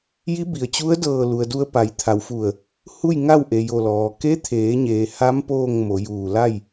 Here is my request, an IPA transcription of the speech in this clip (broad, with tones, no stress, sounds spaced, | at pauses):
j i˧˥ b i˩ ə̯ t͡ɕ u˧˥ ə̯ d ɤː˧˩ l u˩ ə̯ d u˧ ə̯ p a˩˧ j t̪ʰ a˩˧ w f u˧˩ ə̯ | h u˥˨ j ŋ a˥˨ w ʔ e˩ j o˧˩ l ɔː˩ k e˧˥ t̪ʰ eː˩˧ ɲ eː˩ h a˧˥ m p oː˥˨ ŋ m o˩˧ j uː˧˩ l a˥˨ j